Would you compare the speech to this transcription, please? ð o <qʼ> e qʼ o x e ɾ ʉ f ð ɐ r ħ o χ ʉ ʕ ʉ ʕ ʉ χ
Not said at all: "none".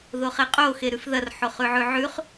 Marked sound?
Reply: χ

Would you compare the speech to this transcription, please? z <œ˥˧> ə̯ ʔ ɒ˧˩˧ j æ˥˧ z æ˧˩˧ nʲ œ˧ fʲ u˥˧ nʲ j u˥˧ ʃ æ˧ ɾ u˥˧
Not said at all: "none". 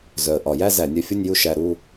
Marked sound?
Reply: œ˨˩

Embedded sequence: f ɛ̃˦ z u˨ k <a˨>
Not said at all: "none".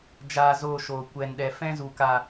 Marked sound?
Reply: a˨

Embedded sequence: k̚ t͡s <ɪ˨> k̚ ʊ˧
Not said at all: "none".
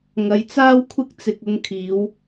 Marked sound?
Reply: ɪ˧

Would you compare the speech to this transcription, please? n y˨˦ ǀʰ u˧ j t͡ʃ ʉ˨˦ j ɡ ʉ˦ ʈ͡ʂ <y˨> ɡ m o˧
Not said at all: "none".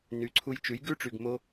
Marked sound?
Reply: y˨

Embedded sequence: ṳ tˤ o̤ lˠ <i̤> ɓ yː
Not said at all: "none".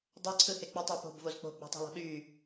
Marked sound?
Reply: i̤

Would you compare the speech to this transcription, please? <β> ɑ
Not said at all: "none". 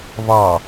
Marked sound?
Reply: β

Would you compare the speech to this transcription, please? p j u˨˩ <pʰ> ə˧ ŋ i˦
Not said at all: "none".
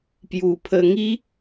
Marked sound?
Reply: pʰ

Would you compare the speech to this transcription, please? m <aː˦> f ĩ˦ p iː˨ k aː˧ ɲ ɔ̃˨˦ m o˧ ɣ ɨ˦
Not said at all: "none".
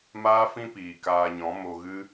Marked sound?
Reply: aː˦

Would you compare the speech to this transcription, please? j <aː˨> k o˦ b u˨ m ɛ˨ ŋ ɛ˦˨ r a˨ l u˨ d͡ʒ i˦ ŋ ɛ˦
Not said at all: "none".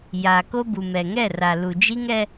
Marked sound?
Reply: aː˨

